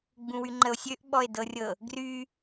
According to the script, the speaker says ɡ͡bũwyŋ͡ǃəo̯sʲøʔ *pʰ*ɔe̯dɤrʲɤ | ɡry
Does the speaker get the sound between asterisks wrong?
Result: yes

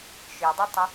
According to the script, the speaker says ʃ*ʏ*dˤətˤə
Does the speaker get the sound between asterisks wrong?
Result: no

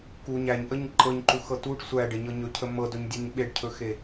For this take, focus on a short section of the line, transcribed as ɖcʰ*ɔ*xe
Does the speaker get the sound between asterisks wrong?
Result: yes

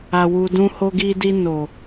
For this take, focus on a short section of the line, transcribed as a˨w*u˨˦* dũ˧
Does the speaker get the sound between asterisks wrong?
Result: yes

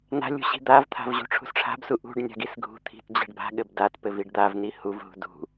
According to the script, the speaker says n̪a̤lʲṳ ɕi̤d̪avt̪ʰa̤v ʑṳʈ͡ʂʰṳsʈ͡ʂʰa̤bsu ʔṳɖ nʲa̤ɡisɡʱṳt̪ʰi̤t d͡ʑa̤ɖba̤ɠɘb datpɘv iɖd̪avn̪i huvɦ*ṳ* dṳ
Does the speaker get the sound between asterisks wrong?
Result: no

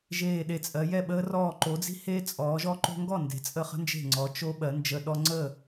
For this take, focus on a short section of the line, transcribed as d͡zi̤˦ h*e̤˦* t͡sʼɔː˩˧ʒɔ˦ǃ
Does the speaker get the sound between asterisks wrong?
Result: yes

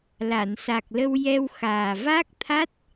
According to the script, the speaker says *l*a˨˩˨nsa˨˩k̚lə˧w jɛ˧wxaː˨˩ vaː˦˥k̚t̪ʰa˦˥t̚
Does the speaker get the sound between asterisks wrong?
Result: no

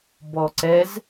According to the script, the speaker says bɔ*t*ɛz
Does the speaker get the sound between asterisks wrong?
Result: yes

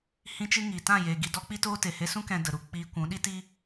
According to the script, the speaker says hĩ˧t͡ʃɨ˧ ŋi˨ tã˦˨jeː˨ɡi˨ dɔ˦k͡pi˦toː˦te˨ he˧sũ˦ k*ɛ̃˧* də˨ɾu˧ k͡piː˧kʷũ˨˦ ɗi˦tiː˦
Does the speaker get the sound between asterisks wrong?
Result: yes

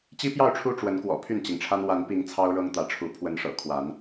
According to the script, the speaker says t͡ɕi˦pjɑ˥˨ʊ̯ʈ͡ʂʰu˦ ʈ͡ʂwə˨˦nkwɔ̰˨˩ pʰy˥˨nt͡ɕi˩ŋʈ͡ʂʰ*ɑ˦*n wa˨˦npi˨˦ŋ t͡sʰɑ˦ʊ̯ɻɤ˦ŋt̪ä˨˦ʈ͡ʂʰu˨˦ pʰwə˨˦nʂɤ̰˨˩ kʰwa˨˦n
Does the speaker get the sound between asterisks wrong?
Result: yes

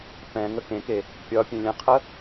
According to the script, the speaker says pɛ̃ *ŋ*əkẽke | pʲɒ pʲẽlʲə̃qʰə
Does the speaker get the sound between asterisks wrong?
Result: no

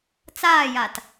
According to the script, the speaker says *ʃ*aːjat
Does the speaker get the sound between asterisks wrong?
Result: yes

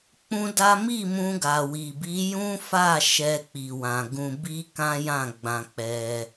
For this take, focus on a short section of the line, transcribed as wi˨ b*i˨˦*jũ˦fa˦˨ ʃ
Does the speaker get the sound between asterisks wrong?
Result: no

